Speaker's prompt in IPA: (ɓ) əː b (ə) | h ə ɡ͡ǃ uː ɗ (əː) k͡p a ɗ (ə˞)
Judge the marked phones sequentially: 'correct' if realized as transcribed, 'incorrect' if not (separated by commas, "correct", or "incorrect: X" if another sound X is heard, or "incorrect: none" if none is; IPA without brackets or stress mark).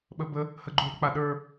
correct, correct, incorrect: ə, correct